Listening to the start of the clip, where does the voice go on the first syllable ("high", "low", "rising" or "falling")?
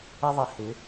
high